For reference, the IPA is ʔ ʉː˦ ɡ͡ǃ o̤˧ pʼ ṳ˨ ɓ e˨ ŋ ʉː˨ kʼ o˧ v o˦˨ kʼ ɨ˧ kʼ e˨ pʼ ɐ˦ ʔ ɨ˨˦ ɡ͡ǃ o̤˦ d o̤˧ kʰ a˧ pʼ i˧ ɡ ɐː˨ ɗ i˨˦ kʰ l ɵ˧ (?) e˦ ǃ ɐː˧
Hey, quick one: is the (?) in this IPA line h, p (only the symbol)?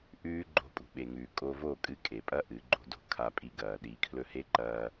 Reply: h